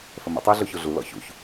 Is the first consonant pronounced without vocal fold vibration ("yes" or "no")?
yes